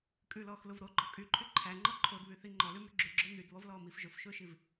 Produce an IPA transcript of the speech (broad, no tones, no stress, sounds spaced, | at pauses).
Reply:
kʼ ʉ l ɔː x l ʊ v ɾ o ɡ͡ǃ ɔ kʼ y ǃʰ y ǃʰ æ ŋ͡ǃ ɔ ǃʰ o d β y θ i ŋ͡ǃ ɔ l ʉ m y ɡ͡ǁ ʉ ɡ͡ǁ ʊː n̪ y d β ɔ v l ɔː m i f ʒ ʊ f ʃ ʊː ʃ i v